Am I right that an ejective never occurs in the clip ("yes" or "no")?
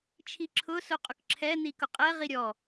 no